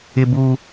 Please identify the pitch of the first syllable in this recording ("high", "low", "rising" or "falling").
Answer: high